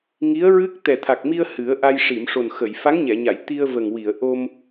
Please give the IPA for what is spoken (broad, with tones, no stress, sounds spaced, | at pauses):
ŋ i˧˥ ə̯ ɹ ɨ˦˥ k̚ t̪ ɛ˨˩ t̪ʰ a˨˩ k̚ m i˧ ə̯ h ɨ˨˩˦ ə̯ ʔ a˧ j ʂ i˨˩˨ m ʂ o˨˩ n x ə˨˩˨ j f a˧˥ ŋ ɲ ɛ˨˩˨ ɲ a˨˩˨ j t̪ i˧ ə̯ v ə˨˩ ŋ w i˨˩˨ ə̯ ʔ o˧ m